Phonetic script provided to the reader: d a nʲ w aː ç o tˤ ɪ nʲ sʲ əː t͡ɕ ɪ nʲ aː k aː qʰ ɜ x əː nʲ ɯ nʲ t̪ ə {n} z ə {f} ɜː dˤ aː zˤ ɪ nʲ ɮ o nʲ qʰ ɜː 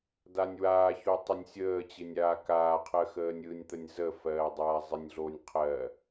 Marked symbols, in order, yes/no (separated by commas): no, yes